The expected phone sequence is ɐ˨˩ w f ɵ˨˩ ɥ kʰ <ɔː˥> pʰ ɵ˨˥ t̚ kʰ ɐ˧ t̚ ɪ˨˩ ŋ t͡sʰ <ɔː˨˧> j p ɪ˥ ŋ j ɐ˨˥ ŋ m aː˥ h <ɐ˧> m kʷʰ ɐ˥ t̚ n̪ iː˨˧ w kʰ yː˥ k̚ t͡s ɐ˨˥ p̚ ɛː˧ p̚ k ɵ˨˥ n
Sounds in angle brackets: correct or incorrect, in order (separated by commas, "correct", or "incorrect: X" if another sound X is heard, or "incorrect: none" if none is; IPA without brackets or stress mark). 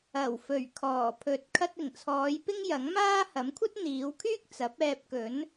incorrect: ɔː˨˩, correct, incorrect: ɐ˨˥